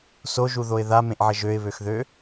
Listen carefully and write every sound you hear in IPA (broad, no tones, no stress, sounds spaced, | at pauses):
s o ʒ u ð o ɪ̯ ð a m ẽ ʔ ʕ ə ʒ ø ɪ̯ β ø x ð ø